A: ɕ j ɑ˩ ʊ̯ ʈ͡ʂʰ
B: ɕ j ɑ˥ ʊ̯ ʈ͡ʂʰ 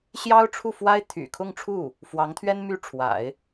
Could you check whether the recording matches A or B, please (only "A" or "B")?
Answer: B